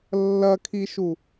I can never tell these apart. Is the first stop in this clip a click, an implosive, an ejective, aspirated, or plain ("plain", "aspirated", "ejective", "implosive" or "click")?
aspirated